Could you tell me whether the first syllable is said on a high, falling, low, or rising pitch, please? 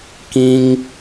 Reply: high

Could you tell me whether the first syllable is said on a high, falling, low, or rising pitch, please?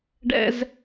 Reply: high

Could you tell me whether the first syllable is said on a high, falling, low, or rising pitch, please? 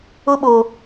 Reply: high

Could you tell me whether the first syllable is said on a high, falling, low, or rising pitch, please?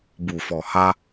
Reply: low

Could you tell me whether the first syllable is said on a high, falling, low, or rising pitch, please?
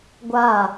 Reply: falling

